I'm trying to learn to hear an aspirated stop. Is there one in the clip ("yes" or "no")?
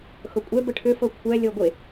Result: yes